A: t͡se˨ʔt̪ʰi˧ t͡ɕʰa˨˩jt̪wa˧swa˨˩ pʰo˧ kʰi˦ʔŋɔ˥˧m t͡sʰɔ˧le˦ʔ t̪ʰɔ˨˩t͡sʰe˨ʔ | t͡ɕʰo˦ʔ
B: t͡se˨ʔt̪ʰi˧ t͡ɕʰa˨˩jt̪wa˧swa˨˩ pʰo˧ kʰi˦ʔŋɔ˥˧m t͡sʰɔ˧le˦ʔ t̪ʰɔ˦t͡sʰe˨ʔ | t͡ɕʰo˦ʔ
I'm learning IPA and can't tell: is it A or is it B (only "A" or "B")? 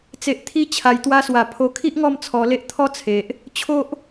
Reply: B